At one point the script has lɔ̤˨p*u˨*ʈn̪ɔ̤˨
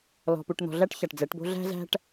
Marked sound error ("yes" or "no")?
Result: no